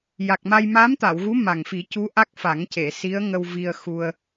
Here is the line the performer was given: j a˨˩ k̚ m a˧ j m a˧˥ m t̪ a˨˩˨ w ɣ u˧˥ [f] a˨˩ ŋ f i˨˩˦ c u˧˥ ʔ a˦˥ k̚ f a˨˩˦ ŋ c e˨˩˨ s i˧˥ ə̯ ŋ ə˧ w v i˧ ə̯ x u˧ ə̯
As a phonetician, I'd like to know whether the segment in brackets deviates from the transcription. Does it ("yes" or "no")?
yes